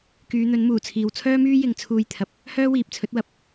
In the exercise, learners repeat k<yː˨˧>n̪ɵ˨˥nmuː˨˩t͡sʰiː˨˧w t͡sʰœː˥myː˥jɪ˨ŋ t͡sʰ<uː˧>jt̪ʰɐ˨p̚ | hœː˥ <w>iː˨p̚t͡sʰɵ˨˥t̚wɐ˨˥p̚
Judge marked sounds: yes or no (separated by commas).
yes, yes, yes